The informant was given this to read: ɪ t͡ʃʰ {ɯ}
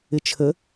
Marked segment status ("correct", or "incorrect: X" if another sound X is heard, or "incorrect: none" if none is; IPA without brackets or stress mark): incorrect: ə